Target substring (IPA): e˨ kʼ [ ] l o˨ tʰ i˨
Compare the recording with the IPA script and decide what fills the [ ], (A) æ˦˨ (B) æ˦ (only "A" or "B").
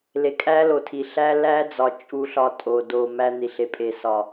B